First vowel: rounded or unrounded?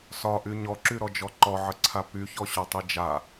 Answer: rounded